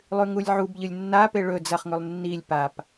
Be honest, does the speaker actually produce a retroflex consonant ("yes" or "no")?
yes